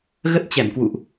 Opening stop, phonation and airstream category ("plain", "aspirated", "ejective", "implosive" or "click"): plain